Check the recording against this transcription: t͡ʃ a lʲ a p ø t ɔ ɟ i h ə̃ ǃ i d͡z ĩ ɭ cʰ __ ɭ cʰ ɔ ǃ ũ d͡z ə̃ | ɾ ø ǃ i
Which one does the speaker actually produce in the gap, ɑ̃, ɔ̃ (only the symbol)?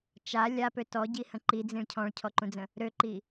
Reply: ɔ̃